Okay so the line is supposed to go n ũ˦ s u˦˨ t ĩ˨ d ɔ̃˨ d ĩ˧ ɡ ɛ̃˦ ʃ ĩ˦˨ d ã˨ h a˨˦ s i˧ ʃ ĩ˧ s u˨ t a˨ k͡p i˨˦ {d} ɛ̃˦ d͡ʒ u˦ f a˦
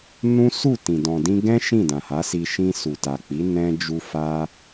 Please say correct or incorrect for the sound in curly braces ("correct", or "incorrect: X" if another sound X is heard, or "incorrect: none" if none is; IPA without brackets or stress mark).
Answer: incorrect: n